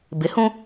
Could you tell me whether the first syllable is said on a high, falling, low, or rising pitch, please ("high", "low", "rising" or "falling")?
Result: rising